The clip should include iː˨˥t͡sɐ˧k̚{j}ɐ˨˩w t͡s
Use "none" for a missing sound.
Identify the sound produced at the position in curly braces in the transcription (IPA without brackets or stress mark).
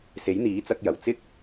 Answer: j